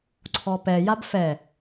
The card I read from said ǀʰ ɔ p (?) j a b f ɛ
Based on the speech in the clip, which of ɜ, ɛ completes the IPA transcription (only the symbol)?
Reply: ɛ